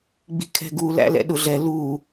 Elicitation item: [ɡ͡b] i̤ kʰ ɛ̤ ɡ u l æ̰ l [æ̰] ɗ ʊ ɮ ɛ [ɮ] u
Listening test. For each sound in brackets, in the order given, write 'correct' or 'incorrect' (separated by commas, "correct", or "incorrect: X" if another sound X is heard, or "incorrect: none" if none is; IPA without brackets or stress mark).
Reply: correct, incorrect: ɛ̰, incorrect: l